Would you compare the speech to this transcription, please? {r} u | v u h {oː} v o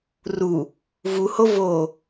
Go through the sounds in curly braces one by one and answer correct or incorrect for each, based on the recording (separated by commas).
correct, incorrect